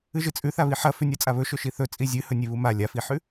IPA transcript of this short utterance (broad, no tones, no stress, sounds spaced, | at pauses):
ɨ ʒ ɨ t͡sʼ ʉ θ a β i ħ ɐ f ʉ nʲ a t͡sʼ a β ɵ ʃ ɵ ʃ i θ ɵ t͡sʼ i zʲ ɨ h ɵ nʲ e β u m a lʲ a f i ħ ʉ